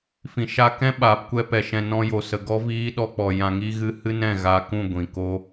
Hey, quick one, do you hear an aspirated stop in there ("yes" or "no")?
no